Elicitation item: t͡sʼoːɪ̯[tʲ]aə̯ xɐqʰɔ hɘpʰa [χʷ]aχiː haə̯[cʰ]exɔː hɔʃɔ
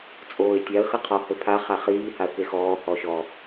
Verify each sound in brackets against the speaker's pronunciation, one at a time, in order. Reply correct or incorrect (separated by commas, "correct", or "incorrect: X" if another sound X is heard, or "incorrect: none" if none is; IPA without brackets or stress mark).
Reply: correct, incorrect: χ, incorrect: k